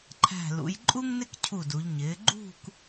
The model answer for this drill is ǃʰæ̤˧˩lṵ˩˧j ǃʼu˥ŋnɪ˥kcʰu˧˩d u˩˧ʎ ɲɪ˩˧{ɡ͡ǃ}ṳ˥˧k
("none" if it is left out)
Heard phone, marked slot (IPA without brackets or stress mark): ɡ͡ǃ